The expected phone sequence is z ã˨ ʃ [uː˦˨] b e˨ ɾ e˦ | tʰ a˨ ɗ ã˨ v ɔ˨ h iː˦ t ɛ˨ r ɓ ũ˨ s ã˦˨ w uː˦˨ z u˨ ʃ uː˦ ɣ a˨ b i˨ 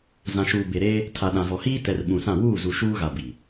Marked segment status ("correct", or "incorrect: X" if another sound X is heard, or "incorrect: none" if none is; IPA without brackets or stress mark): incorrect: uː˨